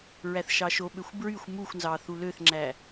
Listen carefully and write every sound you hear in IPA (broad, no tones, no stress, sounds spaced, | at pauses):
ɹ æ θ ʃ ɑ ʃ o ɓ ø xʷ b ɹ y xʷ m u xʷ n z ɑ θ u l ø θ ŋ͡ǁ æ